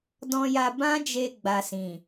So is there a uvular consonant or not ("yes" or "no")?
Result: no